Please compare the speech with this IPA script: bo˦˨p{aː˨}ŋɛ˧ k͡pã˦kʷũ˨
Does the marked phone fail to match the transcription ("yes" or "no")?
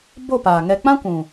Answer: no